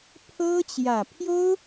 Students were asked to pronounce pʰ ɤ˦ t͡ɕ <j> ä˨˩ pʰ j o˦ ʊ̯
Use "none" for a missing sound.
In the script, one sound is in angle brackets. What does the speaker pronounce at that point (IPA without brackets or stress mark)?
j